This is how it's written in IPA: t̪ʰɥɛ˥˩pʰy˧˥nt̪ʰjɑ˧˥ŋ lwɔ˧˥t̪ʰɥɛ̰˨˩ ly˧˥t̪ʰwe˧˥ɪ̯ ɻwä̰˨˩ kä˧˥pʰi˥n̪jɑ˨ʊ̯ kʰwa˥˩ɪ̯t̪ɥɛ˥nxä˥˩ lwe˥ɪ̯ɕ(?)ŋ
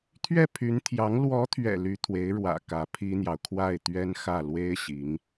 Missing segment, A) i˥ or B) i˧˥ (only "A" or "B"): B